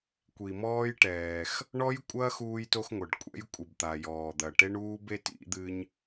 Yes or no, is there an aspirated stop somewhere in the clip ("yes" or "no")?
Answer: no